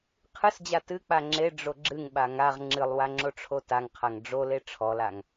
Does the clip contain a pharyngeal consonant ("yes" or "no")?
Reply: no